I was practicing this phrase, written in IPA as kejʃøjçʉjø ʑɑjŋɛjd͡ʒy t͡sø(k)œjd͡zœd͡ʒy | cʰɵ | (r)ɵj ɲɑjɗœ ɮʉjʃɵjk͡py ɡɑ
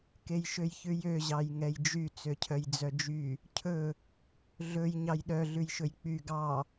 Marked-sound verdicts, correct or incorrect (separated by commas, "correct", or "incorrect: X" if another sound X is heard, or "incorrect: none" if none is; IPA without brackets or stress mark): incorrect: cʰ, incorrect: ɮ